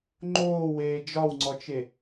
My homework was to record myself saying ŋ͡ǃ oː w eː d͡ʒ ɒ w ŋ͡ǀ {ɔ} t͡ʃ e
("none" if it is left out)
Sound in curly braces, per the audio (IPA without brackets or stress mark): ɔ